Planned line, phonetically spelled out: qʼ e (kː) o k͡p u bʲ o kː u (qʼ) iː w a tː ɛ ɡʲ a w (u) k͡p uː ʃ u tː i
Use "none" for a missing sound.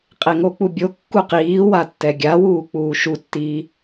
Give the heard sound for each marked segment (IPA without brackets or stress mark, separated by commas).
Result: ŋ, q, uː